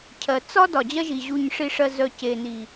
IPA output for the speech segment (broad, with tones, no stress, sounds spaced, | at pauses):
cʰ ɜ˨ t͡s ɒ˦ d ɒ˨ d͡ʑ ɜ˧ ʒ i˨ ʑ u˨ ɲ ʂ i˨ ʂ ɜ˨ z œ˨ c e˨ n i˨